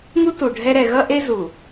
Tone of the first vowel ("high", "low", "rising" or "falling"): high